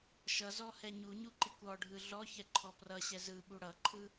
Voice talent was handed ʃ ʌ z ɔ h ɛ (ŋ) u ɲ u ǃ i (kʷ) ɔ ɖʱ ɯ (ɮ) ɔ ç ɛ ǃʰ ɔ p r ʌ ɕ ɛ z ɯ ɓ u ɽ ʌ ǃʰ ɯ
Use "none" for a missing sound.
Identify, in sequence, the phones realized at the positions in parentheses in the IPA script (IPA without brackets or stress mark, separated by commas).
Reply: ɲ, kʷ, ɮ